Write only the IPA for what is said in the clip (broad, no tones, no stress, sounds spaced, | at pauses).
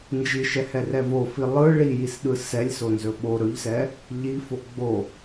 n d͡ʒ i ʃ ɛ h ɛ r ɛ v o f i lˠ ɯ ɭ i j i s ɗ ɯ s ɛ lʲ s o n z ɵ ɓ o ɾ ɵ ʎ s ɛ | ʎ i f o ɡ͡b o